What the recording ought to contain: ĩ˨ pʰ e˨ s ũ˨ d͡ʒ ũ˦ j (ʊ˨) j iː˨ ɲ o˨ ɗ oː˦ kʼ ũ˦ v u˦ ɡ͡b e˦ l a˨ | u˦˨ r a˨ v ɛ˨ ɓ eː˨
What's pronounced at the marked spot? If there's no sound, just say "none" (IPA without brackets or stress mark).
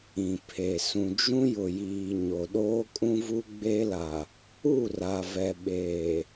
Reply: ʊ˨